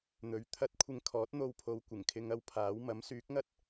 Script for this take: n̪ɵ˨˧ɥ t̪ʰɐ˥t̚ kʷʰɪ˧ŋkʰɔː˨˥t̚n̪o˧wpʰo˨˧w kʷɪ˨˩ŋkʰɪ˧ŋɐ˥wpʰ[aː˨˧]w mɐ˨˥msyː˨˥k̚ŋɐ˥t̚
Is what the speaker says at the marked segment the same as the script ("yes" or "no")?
no